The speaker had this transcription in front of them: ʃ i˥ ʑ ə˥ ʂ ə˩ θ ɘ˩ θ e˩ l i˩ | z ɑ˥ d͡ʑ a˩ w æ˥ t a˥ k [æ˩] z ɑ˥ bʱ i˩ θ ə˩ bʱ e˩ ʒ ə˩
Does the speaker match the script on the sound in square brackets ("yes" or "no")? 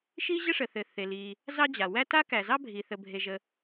yes